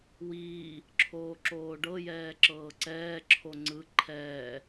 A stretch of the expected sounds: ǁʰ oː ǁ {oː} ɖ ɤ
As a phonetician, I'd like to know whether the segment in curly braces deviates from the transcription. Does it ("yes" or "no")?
no